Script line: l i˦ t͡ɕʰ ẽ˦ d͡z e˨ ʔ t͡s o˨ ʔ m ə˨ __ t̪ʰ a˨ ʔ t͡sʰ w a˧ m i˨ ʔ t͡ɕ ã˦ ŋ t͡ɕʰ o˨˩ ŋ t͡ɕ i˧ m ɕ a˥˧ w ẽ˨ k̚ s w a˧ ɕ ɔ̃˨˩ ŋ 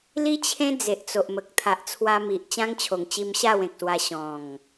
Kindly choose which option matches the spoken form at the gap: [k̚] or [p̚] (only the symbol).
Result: k̚